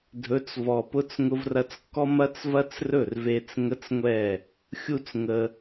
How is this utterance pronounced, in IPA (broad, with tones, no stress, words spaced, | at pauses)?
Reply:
dʱɵ˨˦t͡svɔ˨pʊ˦t͡s ŋʊ˧vrɐ˧t͡skːɔ˦ mɐ˦t͡svɐ˦t͡srɵ˦˨rve˧t͡s ŋə˦t͡sŋʷɛ˦˨ | xʲu˦t͡sŋə˧